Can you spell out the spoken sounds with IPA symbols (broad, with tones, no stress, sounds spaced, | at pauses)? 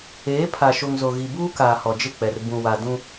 eː˨˦ pʰ a˨ ʃ o˨ ŋ z o˨ ɣ i˨ b uː˦ k aː˨ h ɔ˨ d͡ʒ ɪ˦˨ k͡p ɛ˨ r b ũ˨ w a˨ d ũ˦